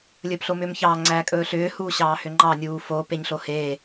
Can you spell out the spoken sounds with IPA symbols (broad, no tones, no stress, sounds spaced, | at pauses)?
lʲ ɵː p ɬ o m ʏː m ç ɑː ŋ͡ǀ æː kʼ ɵː ɬ ʏː h uː ɕ ɑː h ʏ ŋ͡ǃ ɑ nʲ uː f o p e ɲ ɬ o h eː